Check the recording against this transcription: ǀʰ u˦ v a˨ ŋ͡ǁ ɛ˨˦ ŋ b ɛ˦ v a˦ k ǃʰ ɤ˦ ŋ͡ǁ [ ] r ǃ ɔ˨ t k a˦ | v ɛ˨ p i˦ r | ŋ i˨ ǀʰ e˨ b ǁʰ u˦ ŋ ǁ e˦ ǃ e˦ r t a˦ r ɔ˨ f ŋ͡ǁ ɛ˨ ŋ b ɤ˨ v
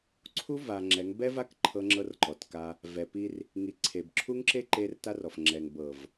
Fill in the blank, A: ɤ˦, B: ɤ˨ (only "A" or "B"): A